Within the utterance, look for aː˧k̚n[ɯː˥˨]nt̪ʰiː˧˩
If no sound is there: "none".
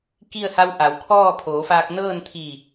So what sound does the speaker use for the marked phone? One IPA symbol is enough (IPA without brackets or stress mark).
ɤː˥˨